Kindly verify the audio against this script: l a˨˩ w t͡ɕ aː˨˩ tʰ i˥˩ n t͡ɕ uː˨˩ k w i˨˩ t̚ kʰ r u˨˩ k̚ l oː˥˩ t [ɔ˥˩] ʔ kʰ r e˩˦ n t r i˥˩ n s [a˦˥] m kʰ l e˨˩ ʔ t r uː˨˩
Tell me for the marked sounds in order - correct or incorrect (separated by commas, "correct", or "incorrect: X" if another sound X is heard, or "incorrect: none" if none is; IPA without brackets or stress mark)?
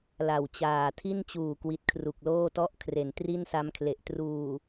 correct, correct